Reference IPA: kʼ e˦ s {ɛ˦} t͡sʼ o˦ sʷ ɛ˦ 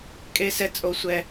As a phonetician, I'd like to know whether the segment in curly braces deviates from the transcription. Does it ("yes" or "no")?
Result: no